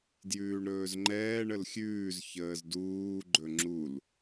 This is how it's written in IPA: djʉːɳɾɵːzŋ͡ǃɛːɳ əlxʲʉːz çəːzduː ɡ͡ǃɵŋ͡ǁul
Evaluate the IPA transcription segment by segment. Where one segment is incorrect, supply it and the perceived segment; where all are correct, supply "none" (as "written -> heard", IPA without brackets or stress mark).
none